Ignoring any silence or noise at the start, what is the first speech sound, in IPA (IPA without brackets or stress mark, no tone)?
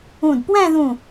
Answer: ũ